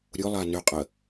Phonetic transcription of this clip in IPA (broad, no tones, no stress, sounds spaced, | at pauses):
ɾʲ ʊ lˠ a n ʏ qʼ ə